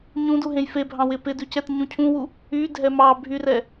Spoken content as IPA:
ɲ ũ d u ɦ ẽ j f e bʱ ɑ̃ w ɪ p ɪ d ʉ c ɛ t ɲ ũ cʰ ũ w u | y dʱ ɛ m ɑ bʱ y r ɛ

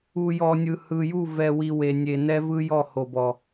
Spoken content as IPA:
u˨ j ɔ˨ nʲ ɯ˨ h ɯ˨ j u˦˨ v ɛ˨ w i˨ w e˨ nʲ e˨ n ɛ˦ v ɯ˦ j ɔ˦˨ h o˨ b ɔ˨

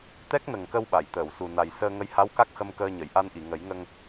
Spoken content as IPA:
t̪ ɛ˦˥ k̚ n ə˨˩ ŋ k ə˧ w ɓ a˨˩˨ j t̪ əː˨˩˨ w s u˨˩ n a˨˩ j s əː˧ ŋ ə˧˥ j h a˧˥ w k a˦˥ k̚ h ə˧ m k əː˧ ɲ ə˨˩˨ j ʔ a˧ n ʔ i˨˩˨ ŋ ə˨˩˦ j ŋ ə˧ ŋ

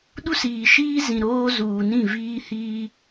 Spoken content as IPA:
ɗ u˦ s iː˨ ʃ iː˦ z ĩ˨ ɾ oː˦ z uː˨ n ĩ˦˨ v iː˦ h iː˦

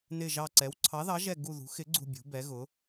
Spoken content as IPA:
n ɪ˦˨ ʒ ɑ˦˨ ǀ ɛ˨˥ w ǀʰ ɑ˨˥ ð ɑ˨˥ ʒ ɛ˦˨ ɡ u˦˨ ð ṳ˨˥ x ɪ˨˥ ɡ͡ǀ ṳ˦˨ bʲ ṳ˨˥ b ɛ˨˥ ɣ ʊ˨˥

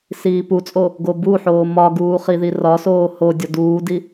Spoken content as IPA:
s iː p u t͡sʼ o | ɡ o b u ħ oː m ɒ ɡ uː χ i ð i r ɒ s oː h o dʲ ɒ d uː d i

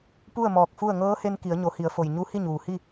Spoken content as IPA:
p u˥˨ ə̯ m ɔː˧˩ k̚ f u˥˨ ə̯ ŋ ɤː˧˥ h e˧ n k i˩˧ ə̯ ɲ o˩˧ h i˩˧ ə̯ f o˩ j ɲ u˧˥ h i˥˨ ɲ uː˩ h i˥˨

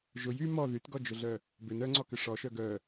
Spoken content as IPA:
ʒ ʊ j y m ɔ ð y t ɡ ɔ d͡ʒ ʊ ɮ œ | b ʏ n œ ŋ͡ǀ ɔ k ʏ ʂ ɔ ʃ œ ɡ œ

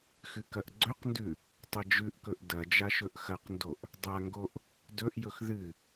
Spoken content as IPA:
x ɨ k ɐ ʔ ɡ͡ǀ ɵ q n d ʉ | tˤ ɐ d͡ʒ ʉ ʔ k ɵ ʔ d ɐ d͡ʒ a ʃ ɵ ʔ x ɐ q n d o ʔ | dˤ a ŋ ɡ o ʔ | d ɵ ʔ j ɵ x ð ɨ

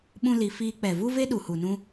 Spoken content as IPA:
ɓ ũ˦ l i˧ f iː˧ k͡p ɛ˨ v u˦ v e˦ ɗ u˨ h u˨ n ũ˧

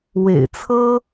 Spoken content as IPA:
w ḛ˨˩ ɪ̯ t͡sʰ ɤ˥

